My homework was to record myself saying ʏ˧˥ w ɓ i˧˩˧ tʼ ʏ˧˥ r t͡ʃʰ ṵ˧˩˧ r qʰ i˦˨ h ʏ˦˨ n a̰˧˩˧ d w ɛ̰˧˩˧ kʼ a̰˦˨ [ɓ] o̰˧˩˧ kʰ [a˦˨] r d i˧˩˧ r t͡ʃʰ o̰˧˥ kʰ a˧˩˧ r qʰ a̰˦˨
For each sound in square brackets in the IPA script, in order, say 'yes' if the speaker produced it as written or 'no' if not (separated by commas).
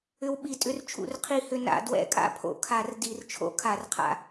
no, no